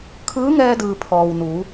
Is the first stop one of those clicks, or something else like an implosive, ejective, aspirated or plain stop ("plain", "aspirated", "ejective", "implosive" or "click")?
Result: aspirated